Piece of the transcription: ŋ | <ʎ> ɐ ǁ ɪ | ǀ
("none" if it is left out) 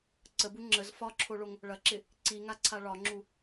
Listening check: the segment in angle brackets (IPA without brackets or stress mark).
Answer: ɭ